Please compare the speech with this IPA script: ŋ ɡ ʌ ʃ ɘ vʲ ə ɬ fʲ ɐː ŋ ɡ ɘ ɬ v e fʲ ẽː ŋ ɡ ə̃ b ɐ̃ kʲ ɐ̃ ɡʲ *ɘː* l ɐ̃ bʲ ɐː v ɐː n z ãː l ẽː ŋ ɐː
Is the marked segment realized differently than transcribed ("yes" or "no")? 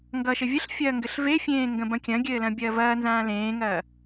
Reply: no